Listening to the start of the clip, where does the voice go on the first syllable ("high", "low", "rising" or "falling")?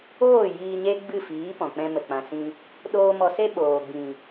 falling